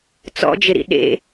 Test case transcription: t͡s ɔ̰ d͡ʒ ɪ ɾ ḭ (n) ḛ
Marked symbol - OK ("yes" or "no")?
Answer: no